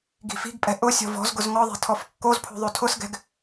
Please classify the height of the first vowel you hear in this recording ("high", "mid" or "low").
high